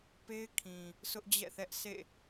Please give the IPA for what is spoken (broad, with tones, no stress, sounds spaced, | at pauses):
p e˦ ɪ̯ kʰ ĩ˨ | s ʊ˦ ʔ d͡ʑ ɛ̰˦˨ θ ɛ˦ ʔ sʰ ḛ˦˨